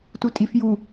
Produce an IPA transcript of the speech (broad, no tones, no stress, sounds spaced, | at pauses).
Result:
t u tʼ i f j u